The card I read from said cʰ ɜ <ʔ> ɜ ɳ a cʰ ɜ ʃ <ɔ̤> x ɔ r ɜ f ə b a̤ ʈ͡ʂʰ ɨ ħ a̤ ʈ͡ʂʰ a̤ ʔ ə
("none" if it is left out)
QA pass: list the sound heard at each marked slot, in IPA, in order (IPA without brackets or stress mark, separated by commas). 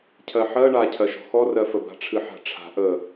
ħ, ɔ̤